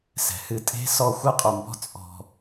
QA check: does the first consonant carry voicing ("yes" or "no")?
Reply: no